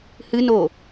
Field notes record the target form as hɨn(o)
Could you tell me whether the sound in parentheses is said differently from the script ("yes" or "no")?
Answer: no